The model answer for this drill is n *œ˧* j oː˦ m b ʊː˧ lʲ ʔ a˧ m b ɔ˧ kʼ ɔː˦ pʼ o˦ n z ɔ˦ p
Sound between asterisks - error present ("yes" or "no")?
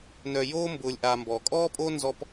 no